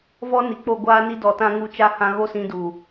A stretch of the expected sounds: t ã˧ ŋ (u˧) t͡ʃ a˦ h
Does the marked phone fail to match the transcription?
no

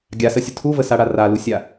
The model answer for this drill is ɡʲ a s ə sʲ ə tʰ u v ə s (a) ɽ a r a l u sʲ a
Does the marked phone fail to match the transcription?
no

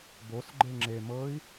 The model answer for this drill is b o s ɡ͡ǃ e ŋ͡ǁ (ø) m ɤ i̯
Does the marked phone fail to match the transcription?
yes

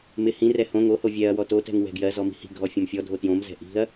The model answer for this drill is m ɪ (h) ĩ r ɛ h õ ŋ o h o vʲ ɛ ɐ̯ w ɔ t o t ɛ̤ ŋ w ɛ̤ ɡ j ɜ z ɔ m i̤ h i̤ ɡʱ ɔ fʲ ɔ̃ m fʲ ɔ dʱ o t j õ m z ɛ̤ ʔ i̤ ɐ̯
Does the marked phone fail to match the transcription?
no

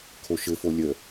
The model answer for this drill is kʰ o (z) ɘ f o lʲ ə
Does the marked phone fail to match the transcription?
yes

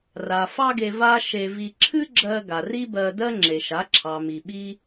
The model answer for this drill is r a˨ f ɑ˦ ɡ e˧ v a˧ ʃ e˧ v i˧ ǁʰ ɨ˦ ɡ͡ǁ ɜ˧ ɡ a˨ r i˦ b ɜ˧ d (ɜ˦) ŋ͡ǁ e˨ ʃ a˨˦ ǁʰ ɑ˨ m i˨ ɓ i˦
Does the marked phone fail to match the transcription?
no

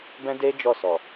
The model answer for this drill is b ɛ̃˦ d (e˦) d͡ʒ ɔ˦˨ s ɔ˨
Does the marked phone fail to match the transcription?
no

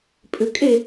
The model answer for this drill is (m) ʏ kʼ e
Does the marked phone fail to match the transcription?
yes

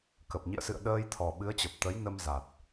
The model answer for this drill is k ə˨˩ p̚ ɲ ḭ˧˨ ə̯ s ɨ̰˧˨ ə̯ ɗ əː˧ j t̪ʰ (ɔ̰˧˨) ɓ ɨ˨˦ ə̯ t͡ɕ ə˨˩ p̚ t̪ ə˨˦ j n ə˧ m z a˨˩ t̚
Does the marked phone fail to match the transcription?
yes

